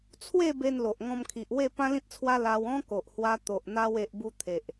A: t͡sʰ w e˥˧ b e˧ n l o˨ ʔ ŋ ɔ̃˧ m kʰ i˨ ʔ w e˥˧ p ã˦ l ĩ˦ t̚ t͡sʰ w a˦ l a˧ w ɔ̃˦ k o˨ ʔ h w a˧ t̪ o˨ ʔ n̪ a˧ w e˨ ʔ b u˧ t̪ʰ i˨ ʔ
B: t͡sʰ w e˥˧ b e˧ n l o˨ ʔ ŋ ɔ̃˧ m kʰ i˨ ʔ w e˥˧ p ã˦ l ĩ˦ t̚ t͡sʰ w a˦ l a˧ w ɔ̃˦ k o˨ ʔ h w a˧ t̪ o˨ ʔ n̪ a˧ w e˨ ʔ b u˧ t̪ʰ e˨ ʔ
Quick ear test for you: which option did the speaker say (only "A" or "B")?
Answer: B